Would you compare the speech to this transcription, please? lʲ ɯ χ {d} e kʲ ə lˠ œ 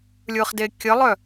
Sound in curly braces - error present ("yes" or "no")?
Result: no